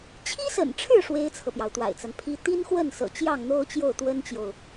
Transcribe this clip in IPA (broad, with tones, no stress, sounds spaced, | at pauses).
t͡ɕʰ i˥ s ə̰˨˩ n ʈ͡ʂʰ ɻ̩˥˩ ʂ w e˥ ɪ̯ t͡sʰ ɤ˨ p j ɑ˩ ʊ̯ t̪ w a̰˨˩ ɪ̯ t͡s a˦ n pʰ i˥ t̪ i˥ n x w ə˥˩ n s ɤ̰˨˩ t͡ɕ j ɑ˥˩ ŋ n̪ o˥ ʊ̯ t͡ɕ j o˥˩ ʊ̯ t̪ w ə˥ n t͡ɕ j o˨ ʊ̯